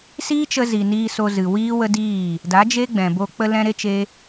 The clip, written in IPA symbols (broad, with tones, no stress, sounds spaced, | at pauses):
s iː˦ t͡ʃ ə˧ z i˨ n iː˧ s o˧ z ɨ˨ w iː˦ w ə˦ d iː˦˨ | d a˨˦ d͡ʒ e˦ ɡ͡b ɛ̃˨ b o˧ k͡p ə˧ l ɛ̃˧ ɾ e˦ t͡ʃ e˦